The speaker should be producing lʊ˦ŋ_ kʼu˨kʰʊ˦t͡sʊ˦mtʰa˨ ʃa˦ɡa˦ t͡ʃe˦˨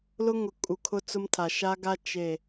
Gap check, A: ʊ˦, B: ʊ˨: B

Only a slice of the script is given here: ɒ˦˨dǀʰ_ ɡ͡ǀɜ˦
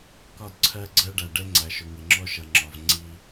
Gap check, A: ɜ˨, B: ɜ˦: B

